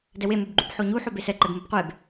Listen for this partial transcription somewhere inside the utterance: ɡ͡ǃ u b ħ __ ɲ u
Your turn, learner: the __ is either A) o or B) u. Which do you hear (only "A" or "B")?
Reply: A